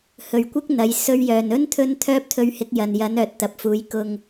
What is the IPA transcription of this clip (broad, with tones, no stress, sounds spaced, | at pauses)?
h ɵ˨ ɥ kʷ ɪ˥ k̚ n̪ ɐ˨˧ j s ɵ˧ ɥ j œː˨ n ɵ˧ n t̪ʰ ɵ˨˧ n t̪ʰ œː˥ p̚ t̪ʰ ɵ˧ ɥ h ɪ˨˥ k̚ j ɐ˨ n j ɐ˨˥ n œː˨ t̚ t̪ ɐ˨ p̚ f uː˨˧ j k ʊ˥ ŋ